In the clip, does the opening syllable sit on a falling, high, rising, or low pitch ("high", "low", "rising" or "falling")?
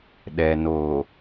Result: low